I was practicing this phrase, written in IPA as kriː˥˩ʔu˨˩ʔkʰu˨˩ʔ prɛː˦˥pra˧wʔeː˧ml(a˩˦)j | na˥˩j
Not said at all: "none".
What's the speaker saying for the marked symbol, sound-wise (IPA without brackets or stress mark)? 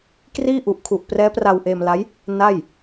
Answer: a˦˥